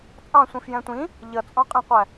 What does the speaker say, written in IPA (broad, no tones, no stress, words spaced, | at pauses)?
t͡sʼɑ̃sʷĩfjɛ̃ tʷĩ | ʎʌt͡sʼɔ̃qʼĩqʷæ